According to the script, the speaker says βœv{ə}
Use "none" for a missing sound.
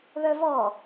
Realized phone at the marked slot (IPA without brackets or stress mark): ɔ